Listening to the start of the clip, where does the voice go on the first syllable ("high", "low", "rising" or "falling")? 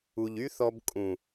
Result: low